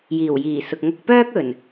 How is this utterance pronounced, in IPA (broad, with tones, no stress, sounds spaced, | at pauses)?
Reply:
j iː˨˩ w j iː˨˩ s ʊ˨ k̚ ŋ ɐ˧ k̚ p œː˥ k̚ ɵ˨˩ n